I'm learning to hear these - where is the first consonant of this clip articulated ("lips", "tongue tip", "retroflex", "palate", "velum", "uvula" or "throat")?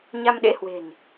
palate